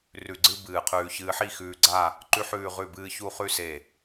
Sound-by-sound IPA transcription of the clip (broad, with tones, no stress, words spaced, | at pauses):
rʉ˧˩ɡ͡ǀɨ˥bɨː˧˩qʰʉː˧ çɨː˧ħi˥˧xʉː˧ɡ͡ǀa˥˧ | ǃʉ˥ħʉː˥˧ʁʉ˥˧bɨː˥ çu˥˧χʉ˥ se˧˩